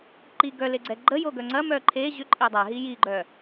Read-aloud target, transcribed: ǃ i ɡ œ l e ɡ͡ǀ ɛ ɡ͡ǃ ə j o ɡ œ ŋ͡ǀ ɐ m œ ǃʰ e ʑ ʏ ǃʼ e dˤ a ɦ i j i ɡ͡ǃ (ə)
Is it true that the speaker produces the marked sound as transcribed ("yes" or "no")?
no